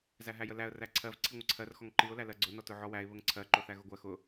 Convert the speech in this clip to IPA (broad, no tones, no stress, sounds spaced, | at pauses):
z æ ɦ æ j ə l æ ə̯ r æ ǀʰ ɜ v ǀʰ i ŋʷ ə ǀʰ ɜ r x ɔ ŋ ǃ i ʊ̯ l æ l ɜ ɡ͡ǀ ʊ n ɔ t ʊ ʕ ɔ w æ ɪ̯ β ə ŋ ǀʰ ɜ ǃ ʊ θ æ ɣ ʊ ɡʷ ɜ x ʊ